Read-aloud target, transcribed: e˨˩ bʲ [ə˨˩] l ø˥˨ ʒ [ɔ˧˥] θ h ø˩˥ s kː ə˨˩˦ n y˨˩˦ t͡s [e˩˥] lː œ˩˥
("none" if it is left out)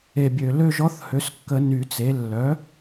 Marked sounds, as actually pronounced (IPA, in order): ø˨˩, ɔ˧˥, e˩˥

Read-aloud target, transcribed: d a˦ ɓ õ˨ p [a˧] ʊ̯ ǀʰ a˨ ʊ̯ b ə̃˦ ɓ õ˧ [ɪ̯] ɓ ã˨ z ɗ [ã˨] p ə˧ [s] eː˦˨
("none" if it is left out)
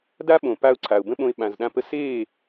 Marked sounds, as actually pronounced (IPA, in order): a˧, ɪ̯, ã˧, s

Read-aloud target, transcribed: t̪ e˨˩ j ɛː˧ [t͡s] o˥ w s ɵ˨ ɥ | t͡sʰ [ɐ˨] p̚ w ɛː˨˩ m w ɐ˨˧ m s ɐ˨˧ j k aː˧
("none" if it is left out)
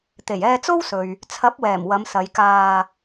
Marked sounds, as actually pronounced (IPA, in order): t͡s, ɐ˨˥

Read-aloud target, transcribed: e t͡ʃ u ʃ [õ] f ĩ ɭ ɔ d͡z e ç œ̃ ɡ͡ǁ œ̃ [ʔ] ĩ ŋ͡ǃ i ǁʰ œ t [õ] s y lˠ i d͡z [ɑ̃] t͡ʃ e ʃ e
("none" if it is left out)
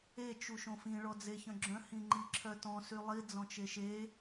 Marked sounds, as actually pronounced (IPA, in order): õ, h, ɔ̃, ɔ̃

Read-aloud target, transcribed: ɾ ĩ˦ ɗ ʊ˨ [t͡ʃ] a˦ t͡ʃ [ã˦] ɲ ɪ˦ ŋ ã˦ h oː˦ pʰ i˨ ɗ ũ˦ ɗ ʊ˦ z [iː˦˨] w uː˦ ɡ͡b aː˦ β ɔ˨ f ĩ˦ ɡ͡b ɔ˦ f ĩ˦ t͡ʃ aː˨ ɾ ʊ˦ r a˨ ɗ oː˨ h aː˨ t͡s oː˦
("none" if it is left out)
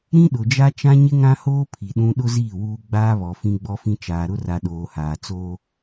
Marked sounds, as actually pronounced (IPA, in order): d͡ʒ, ã˦, iː˦˨

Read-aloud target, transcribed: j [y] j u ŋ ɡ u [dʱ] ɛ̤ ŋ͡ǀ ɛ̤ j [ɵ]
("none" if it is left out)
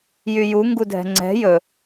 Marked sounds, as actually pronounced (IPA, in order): y, dʱ, ɵ

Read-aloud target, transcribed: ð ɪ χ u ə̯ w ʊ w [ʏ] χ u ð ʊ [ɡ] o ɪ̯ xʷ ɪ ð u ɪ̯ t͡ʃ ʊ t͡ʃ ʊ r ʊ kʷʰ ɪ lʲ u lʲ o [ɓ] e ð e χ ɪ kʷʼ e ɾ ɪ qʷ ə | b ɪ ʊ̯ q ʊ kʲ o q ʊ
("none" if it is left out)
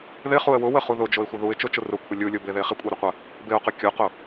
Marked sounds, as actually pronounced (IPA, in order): ə, d͡ʒ, b

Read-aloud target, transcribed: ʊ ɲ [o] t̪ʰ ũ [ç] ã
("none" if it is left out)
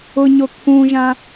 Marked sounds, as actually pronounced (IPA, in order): o, ʒ

